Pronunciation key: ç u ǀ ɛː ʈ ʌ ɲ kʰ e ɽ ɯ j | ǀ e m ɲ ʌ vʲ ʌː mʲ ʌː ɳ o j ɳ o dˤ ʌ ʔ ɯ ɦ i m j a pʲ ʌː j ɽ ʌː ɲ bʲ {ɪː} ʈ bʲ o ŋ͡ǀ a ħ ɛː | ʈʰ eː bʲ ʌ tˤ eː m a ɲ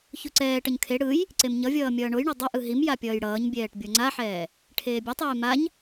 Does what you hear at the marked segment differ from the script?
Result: yes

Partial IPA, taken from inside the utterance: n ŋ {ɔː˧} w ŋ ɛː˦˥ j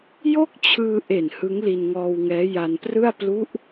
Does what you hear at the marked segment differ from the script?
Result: no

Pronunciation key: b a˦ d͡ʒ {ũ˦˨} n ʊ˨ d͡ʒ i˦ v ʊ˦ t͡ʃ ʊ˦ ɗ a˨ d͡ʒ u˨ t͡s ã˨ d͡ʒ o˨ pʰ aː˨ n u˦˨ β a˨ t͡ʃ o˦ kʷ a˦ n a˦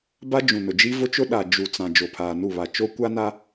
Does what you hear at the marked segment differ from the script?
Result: yes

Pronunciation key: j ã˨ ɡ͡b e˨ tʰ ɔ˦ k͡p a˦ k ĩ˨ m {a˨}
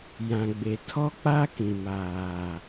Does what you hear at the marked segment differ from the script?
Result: yes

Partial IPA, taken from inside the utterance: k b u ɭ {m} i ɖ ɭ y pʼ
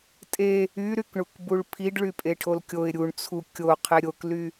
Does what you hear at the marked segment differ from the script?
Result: yes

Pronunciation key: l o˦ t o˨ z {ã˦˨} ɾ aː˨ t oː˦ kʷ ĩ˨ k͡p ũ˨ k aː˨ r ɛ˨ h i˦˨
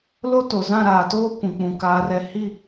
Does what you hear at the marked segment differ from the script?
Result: no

